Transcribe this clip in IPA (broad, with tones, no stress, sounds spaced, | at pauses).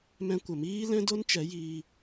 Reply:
m ɛ̃˧ kʷ ə˨ m iː˦ l ɛ̃˦ d o˦ n t͡ʃ ɛ˨˦ j iː˧